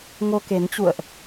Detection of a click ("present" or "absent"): absent